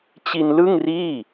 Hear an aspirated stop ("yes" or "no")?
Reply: no